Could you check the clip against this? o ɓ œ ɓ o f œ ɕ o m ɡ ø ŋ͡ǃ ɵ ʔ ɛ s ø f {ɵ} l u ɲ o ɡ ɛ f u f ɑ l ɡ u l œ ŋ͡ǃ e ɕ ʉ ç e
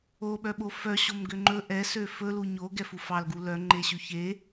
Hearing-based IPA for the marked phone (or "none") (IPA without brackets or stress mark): ɵ